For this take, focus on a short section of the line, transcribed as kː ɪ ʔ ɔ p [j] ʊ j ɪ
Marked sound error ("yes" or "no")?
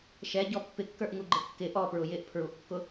yes